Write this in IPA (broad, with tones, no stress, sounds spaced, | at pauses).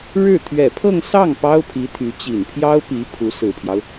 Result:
ɻ ɻ̩˥˩ t̪ʰ ɥ ɛ˨˩ pʰ ɤ˥˧ ŋ s ɑ˥˩ ŋ p ɑ˥ ʊ̯ pʰ i˧˥ t̪ʰ y˧˥ t͡ɕ i˨˩ n pʰ j ɑ˥ ʊ̯ p i˧˥ pʰ u˧˥ s ɹ̩˨˩ pʰ j ɑ˦ ʊ̯